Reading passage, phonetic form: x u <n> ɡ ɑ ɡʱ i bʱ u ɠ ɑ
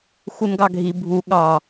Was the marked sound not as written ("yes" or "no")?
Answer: no